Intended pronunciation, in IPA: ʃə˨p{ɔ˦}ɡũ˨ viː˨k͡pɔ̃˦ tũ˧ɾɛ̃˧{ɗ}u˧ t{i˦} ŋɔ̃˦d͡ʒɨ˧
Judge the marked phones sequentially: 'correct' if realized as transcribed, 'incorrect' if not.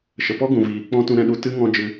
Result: correct, correct, incorrect: ɨ˦

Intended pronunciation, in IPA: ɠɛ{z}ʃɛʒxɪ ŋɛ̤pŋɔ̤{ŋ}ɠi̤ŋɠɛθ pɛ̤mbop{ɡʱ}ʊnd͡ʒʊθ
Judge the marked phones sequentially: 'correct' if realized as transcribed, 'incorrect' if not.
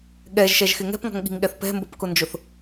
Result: incorrect: ʒ, correct, incorrect: k

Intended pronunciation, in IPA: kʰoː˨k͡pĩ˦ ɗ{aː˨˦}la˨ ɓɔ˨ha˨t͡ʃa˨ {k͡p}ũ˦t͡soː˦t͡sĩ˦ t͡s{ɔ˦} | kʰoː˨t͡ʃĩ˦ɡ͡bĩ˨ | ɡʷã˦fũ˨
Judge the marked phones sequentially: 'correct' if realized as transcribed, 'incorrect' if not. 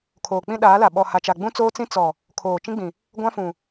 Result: correct, incorrect: ɡ͡b, incorrect: ɔ˨

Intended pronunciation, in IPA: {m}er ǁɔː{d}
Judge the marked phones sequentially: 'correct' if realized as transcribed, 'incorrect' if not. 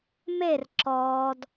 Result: correct, correct

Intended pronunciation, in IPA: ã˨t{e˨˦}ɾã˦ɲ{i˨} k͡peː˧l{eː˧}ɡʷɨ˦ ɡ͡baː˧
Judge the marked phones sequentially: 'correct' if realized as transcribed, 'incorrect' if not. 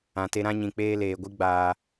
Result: incorrect: e˧, incorrect: ĩ˨, incorrect: eː˨

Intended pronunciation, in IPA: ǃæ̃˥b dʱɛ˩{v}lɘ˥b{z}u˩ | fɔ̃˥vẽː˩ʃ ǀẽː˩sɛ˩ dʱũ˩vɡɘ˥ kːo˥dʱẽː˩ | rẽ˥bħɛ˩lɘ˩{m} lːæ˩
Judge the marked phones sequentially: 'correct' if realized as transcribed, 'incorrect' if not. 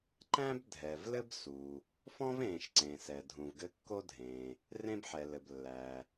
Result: correct, incorrect: s, incorrect: b

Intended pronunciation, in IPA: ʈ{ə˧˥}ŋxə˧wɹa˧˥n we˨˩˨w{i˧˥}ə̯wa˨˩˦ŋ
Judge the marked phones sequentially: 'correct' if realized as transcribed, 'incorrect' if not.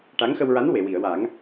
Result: incorrect: a˧˥, incorrect: i˨˩˨

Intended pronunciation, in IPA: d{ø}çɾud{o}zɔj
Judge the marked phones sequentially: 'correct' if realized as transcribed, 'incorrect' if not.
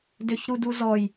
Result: correct, incorrect: u

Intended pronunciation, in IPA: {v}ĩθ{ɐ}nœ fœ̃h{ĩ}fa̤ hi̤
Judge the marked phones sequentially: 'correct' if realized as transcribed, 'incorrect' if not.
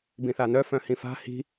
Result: incorrect: b, incorrect: a, correct

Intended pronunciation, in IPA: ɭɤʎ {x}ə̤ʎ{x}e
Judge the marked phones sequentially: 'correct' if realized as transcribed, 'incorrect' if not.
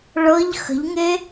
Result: correct, incorrect: ŋ

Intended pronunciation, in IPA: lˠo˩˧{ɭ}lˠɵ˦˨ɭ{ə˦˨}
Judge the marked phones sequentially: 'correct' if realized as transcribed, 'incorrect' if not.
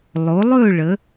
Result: incorrect: none, incorrect: ə˩˧

